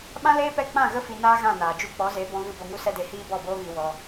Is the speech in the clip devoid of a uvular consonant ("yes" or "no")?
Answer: yes